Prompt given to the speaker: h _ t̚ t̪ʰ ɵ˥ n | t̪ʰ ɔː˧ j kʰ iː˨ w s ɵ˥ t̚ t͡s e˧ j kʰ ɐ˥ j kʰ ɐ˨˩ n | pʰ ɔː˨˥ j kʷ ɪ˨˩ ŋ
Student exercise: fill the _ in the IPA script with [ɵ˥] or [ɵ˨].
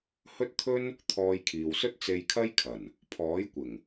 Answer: ɵ˥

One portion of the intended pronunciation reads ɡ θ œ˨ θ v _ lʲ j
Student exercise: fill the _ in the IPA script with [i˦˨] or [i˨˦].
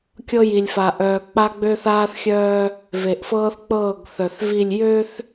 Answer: i˦˨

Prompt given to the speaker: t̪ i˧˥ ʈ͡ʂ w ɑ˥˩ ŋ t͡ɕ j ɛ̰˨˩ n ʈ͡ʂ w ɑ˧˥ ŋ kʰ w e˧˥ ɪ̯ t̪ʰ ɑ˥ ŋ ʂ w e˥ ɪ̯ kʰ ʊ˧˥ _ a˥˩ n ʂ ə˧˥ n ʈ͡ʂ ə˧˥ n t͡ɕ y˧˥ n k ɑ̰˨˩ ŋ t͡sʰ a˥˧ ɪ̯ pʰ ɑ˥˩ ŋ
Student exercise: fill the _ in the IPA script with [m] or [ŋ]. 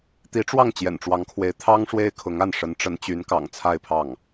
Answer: ŋ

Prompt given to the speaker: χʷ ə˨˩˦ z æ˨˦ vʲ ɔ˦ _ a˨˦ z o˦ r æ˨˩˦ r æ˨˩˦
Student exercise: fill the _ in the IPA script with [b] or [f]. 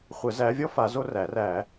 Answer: f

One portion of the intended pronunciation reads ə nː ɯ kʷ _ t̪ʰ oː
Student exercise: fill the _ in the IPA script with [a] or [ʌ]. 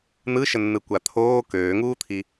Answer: a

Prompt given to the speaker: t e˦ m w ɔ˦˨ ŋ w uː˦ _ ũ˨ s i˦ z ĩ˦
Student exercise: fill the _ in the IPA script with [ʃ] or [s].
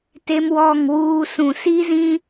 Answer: s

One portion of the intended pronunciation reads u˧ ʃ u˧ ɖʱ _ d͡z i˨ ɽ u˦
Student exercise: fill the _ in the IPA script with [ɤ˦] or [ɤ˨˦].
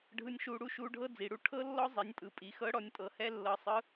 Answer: ɤ˦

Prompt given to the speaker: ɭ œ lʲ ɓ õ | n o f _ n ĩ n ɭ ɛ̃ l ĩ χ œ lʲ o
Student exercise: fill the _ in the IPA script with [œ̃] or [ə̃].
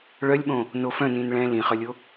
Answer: œ̃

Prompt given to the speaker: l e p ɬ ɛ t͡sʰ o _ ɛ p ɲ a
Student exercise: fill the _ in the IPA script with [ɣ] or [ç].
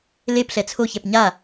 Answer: ç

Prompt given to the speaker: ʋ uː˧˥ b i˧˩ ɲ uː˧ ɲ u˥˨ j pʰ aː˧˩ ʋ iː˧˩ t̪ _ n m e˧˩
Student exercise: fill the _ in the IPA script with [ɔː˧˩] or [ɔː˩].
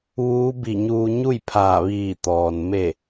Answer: ɔː˩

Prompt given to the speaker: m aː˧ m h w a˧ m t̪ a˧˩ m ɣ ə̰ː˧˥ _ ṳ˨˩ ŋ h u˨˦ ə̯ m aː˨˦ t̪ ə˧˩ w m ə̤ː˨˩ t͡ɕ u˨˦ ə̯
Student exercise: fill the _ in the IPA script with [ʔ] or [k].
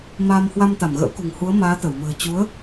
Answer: k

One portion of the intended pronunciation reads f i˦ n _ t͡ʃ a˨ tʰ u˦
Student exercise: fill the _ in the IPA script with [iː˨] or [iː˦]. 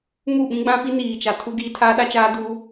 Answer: iː˨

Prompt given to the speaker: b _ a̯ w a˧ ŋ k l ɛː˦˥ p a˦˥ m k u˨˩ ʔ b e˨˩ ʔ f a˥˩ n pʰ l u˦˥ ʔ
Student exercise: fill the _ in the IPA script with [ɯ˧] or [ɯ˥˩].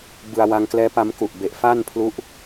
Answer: ɯ˧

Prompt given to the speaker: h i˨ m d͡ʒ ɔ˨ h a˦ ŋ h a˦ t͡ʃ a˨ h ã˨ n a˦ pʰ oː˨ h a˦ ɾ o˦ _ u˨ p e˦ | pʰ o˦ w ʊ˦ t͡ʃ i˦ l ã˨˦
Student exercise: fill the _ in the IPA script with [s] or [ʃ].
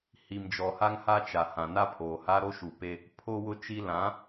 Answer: ʃ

